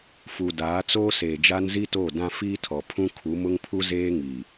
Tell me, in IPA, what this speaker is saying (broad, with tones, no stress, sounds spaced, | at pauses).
f u˨ d aː˨˦ t͡s oː˦ s eː˨ d͡ʒ a˦ n z i˦ t oː˦˨ d ã˦ f iː˦ tʰ ɔ˨ pʰ ũ˦ kʰ u˨˦ m ʊ˦ ŋ pʰ u˦ z eː˦ ŋ i˨